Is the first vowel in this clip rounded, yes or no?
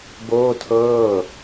yes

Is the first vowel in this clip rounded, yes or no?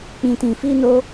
no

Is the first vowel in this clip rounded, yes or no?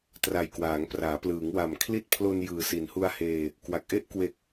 no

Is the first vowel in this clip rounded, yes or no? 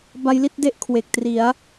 no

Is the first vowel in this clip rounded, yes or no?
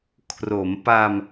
yes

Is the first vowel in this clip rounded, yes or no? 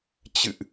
no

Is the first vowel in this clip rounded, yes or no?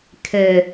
no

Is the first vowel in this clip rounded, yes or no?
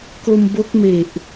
yes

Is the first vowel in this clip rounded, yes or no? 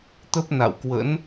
no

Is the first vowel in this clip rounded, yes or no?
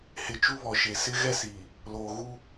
no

